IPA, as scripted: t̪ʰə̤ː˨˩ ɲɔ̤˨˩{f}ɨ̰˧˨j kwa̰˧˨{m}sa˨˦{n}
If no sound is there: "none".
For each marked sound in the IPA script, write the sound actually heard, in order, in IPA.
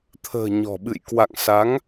ɓ, ŋ, ŋ

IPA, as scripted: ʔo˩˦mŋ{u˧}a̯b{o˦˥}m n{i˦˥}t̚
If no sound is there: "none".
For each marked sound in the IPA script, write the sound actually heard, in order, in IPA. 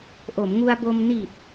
u˧, o˧, i˨˩

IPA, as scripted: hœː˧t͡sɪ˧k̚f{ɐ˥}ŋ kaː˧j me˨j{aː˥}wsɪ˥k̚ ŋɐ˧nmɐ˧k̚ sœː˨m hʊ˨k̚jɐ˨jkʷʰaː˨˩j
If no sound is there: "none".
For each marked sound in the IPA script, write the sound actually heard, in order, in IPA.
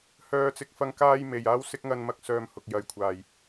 ɐ˧, aː˥

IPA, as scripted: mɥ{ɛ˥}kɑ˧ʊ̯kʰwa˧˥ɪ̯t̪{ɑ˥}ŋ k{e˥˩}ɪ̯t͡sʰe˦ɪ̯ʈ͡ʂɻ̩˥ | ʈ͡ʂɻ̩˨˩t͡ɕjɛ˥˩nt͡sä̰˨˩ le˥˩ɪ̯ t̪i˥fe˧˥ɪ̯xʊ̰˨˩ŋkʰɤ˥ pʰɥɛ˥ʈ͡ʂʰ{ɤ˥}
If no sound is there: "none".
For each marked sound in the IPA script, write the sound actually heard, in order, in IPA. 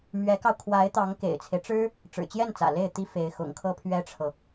ɛ˧˥, ɑ˧˥, ḛ˨˩, ɤ˨

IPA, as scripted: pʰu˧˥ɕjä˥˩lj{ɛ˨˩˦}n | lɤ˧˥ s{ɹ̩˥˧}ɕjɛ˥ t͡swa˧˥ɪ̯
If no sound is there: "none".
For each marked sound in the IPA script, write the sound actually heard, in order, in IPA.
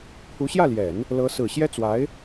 ɛ˨˩˦, ɹ̩˨˩

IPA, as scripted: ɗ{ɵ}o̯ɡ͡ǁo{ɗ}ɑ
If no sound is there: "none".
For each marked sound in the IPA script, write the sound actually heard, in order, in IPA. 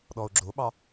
ɔ, ɓ

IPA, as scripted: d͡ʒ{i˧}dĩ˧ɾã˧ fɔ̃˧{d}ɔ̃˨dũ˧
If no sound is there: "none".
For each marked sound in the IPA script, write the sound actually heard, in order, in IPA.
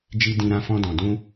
i˧, d

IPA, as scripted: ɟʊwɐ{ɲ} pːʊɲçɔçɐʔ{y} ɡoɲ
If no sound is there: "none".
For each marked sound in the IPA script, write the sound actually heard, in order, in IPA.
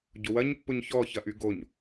ɲ, y

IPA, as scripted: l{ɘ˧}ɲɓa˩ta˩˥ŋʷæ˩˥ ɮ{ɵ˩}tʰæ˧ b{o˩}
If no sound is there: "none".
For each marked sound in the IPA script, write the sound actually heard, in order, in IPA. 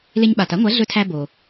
e˧, ɵ˧, o˩

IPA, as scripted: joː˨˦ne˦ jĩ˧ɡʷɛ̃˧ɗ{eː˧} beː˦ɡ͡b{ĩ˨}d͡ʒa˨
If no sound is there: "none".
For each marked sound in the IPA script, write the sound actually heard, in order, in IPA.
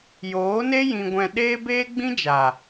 eː˦, ĩ˦

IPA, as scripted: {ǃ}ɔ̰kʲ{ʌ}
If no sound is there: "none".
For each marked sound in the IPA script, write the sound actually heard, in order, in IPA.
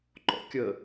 ǃ, ə

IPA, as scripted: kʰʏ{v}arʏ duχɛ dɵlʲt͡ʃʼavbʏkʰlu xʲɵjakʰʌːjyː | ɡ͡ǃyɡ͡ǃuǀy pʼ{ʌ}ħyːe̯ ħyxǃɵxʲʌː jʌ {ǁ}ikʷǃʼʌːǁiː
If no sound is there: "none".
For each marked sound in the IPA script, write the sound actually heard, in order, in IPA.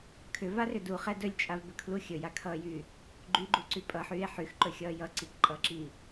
v, ʌ, ǀ

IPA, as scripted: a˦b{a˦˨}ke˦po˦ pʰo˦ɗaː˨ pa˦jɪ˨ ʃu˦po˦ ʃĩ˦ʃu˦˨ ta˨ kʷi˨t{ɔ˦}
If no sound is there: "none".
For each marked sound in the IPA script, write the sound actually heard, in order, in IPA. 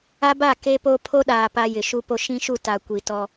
a˦˨, ɔ˦

